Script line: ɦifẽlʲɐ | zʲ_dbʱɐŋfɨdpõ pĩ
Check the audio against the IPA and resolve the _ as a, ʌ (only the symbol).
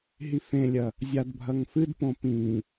a